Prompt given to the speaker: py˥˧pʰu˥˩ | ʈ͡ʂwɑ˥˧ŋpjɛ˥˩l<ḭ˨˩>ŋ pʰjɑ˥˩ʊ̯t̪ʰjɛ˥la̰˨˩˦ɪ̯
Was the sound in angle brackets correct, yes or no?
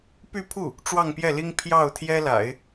no